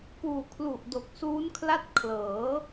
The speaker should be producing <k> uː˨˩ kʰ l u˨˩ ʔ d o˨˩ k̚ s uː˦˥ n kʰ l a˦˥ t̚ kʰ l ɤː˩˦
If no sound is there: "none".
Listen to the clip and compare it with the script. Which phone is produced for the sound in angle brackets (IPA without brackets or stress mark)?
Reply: k